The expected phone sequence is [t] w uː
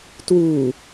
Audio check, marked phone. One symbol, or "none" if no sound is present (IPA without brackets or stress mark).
t